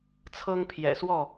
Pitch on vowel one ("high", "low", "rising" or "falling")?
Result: high